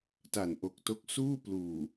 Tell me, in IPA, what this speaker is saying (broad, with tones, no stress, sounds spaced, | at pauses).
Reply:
t a˨˩ n ʔ o˨˩ k̚ t o˦˥ k̚ s uː˥˩ p l uː˨˩